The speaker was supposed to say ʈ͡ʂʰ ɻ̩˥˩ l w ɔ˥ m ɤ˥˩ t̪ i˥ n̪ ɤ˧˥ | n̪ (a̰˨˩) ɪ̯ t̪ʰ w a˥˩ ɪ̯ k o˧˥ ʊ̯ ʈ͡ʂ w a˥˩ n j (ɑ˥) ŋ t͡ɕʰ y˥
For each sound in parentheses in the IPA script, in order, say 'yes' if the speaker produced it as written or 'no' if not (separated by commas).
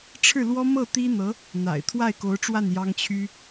yes, yes